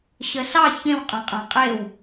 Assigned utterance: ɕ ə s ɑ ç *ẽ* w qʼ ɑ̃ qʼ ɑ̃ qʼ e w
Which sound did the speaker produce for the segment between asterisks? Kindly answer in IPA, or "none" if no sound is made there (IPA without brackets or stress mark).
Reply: ẽ